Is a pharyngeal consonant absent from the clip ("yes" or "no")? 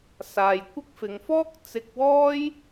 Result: yes